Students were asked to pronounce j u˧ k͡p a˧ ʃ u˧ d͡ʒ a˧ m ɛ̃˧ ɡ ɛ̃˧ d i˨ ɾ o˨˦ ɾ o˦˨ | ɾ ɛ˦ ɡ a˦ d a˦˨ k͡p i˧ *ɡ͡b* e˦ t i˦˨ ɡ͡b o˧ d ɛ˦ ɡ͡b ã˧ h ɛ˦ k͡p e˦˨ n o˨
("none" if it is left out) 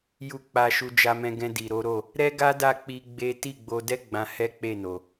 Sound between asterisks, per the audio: ɡ͡b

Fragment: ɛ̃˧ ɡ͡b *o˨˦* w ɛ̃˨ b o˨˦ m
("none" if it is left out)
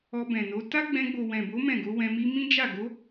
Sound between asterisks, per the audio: o˨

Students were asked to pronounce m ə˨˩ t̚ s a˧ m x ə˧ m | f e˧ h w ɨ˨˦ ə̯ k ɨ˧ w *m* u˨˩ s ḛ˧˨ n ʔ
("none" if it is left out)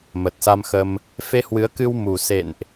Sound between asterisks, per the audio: m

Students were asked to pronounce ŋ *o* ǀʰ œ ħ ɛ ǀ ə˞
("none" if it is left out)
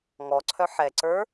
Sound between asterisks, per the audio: ɔ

